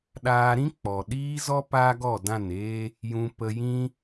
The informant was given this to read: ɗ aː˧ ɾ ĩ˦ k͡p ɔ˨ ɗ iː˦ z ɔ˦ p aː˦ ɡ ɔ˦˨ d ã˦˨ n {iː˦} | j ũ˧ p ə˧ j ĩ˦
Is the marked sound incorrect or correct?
incorrect